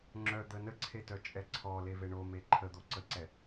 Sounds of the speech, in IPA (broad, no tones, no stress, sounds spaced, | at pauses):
ŋ͡ǁ œ d̪ ə n ə ǀʰ e t œ t͡ʃʼ ɛ ǀʰ ɔ l e v e ɳ o m e ǃʰ ə d̪ o ǀ ə ǀ ɛ